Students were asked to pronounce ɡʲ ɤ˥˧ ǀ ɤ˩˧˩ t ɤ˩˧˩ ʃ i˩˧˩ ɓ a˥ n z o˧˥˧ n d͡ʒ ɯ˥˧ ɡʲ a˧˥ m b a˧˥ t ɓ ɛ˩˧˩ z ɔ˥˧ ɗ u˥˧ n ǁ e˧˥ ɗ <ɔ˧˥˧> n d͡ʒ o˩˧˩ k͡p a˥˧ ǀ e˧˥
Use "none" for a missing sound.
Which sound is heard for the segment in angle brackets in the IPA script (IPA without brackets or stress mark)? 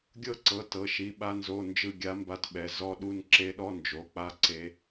ɔ˧˥˧